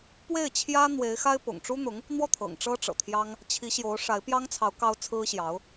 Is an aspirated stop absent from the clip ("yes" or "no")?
no